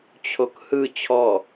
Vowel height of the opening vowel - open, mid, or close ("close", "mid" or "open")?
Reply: mid